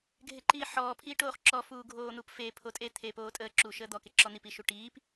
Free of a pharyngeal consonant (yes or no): no